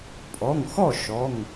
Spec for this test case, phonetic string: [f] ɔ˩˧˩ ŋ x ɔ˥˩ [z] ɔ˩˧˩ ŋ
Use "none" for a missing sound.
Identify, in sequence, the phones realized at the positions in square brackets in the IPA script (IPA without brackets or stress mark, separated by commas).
pʼ, ʃ